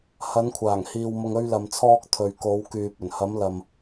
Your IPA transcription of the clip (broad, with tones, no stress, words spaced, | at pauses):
hɐ˨˧nkʷʰaː˨˩ŋhiː˨wmʊ˨ŋ ɵ˧ɥlɐ˨mt͡sʰɔː˧k̚ t̪ʰɵ˨ɥko˨˧wkyː˨p̚ ɵ˨˩nhɐ˨˧mlɐ˨m